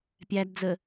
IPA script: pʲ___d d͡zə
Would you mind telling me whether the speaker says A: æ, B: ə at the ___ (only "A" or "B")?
A